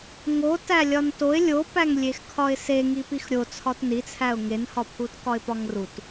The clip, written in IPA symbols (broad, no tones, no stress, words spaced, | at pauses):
ŋo tælʲɒntoɪ̯ lʲopæŋlʲexkʰɒɪ̯ seŋi pixɾʲo t͡sʰɒtnit͡sʰæʊ̯ ŋenhɒpʰutkɒɪ̯ pɒŋrut